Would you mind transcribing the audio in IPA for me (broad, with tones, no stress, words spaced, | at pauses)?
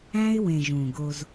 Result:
æ̃˦ɪ̯wẽ˨ ʒũ˨ɡo˦z